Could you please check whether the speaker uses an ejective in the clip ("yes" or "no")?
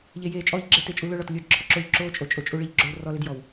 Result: yes